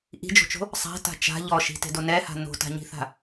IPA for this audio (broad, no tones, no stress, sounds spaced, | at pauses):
ʔ i̤ d͡ʒ o̤ t͡ʃ o̤ | sˤ a̤ t a̤ t͡ʃ a̤ ʎ ɔ ʃ i̤ t e̤ d o n ɛ h a̤ n o̤ t a̤ ɲ i̤ θ a̤